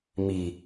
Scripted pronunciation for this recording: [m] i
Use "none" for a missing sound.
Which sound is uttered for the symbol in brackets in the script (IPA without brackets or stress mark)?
m